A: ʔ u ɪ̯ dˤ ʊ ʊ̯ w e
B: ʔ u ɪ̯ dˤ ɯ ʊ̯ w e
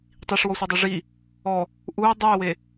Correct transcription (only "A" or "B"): B